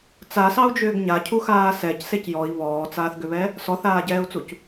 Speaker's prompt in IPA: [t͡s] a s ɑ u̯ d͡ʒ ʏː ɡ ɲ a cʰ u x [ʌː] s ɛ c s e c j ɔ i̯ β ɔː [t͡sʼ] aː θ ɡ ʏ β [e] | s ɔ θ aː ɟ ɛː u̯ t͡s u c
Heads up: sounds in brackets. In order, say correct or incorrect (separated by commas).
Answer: correct, incorrect, incorrect, incorrect